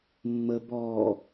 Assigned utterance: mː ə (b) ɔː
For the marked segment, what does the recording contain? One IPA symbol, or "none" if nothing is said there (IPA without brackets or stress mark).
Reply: b